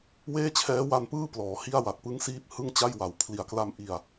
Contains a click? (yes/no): no